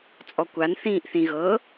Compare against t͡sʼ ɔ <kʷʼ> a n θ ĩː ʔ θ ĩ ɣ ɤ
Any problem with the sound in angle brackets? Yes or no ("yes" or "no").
yes